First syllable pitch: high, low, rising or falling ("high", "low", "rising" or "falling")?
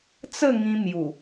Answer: falling